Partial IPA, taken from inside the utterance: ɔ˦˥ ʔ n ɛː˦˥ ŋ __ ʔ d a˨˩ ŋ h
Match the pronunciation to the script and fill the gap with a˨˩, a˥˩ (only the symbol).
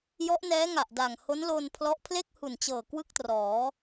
a˨˩